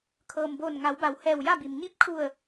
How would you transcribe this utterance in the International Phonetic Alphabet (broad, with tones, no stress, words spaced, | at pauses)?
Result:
kʰɤː˩mboː˧˩nŋa˩˧wba˩˧w hɛː˧˩wja˥˨bi˩m ɲi˧˥p̚kʰu˧˩ə̯